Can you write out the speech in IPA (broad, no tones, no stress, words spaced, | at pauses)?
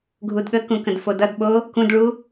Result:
ɡʱudɠəkũ kə̃dfodʌdɓo | kũdɭu